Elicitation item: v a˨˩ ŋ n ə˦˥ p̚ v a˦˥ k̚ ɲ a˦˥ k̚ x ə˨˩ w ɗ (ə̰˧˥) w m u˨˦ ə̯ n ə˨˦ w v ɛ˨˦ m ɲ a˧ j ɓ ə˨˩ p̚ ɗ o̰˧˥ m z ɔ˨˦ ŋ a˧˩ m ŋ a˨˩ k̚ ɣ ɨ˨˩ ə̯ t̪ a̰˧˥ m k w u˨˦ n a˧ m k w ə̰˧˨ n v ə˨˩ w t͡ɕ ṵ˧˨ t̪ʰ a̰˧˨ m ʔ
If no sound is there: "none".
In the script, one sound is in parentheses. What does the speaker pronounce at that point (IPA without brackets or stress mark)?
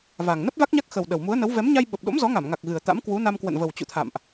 ə˨˩